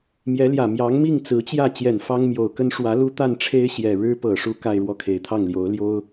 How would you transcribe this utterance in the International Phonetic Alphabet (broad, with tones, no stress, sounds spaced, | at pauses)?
m j ɛ˧˥ l j ä˨˩ m j ɑ˧˥ ŋ m i˥˩ ŋ t͡s ɹ̩˧˥ t͡ɕ j ä˥˩ t͡ɕ j ɛ˨˩ n f ɑ˥ ŋ m j o˨˩ ʊ̯ k ə˥ n ʂ w ä˧˥ l u˥ t̪ a˥˩ n ʈ͡ʂʰ e˥ ɪ̯ ɕ j ɛ˨˩ ɻ ɻ̩˥ p ɤ˨˩ ʂ u˥ k a˥˧ ɪ̯ ɻ w ɔ˥˩ kʰ e˨˩ ɪ̯ t̪ʰ ɑ˥˩ ŋ l j o˧˥ ʊ̯ l j o˥ ʊ̯